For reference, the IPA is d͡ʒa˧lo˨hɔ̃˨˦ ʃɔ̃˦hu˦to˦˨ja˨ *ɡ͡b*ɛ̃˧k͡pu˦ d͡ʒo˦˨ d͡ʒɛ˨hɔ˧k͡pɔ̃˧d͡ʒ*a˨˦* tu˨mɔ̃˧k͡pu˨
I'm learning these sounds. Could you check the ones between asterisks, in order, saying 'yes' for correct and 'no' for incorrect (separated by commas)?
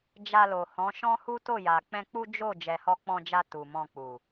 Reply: no, no